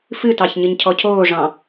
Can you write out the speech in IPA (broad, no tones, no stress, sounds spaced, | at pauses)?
f ɨ t ɑ ç ɲ ɨ ɲ cʰ ɔ cʰ oː ʐ ɑ̃